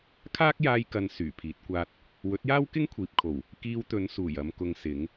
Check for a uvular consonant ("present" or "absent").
absent